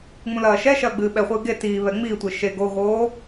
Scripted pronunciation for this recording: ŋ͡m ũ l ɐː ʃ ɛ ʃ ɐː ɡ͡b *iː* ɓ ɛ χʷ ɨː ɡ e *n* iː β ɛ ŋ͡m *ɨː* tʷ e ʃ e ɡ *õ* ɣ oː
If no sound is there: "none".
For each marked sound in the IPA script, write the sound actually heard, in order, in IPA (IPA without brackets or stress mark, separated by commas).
ɨː, t, iː, o